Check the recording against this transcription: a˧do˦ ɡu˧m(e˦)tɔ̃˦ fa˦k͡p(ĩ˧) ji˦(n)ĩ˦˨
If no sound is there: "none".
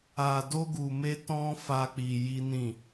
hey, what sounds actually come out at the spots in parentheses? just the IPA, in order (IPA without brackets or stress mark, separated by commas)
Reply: e˦, i˧, n